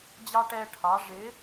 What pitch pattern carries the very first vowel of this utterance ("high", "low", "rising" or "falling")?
high